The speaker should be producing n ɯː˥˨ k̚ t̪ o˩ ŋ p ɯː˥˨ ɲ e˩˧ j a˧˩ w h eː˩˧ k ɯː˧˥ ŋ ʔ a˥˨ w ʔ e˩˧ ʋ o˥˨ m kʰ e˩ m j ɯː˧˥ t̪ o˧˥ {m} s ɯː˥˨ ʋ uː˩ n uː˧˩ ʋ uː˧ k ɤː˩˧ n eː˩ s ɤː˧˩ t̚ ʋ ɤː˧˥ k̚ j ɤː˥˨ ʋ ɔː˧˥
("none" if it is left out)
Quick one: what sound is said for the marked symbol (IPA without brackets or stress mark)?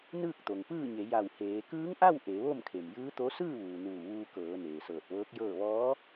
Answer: none